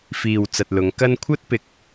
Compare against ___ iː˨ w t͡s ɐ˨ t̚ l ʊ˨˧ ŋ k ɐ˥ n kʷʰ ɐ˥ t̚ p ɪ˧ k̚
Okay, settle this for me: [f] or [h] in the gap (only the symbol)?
f